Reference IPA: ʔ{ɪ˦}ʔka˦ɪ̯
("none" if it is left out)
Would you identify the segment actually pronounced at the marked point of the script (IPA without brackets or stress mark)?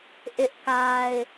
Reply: ɪ˦